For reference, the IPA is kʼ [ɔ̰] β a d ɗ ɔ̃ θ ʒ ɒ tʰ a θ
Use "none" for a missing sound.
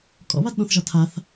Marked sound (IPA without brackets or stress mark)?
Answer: ɔ̰